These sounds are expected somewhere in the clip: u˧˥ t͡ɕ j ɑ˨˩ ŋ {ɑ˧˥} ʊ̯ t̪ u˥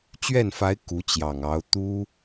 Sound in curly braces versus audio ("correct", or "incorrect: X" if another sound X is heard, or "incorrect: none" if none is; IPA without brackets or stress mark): correct